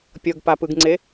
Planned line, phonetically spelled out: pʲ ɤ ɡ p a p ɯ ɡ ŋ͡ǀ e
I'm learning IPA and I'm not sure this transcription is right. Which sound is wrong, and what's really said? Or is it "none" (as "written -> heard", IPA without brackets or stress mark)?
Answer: none